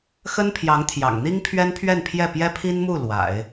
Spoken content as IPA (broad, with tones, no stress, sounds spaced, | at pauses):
x ə˥ n pʰ j ɑ˧˥ ŋ t̪ʰ j ɑ̰˨˩ ŋ n̪ i˥ ŋ pʰ ɥ ɛ˥ n pʰ ɥ ɛ˥˧ n pʰ j ɛ˥˩ p j ɛ˥ pʰ i˥ n m u˥˩ l w a̰˨˩˦ ɪ̯